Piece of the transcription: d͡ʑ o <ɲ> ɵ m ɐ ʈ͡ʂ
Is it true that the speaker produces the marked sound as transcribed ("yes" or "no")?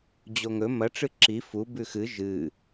no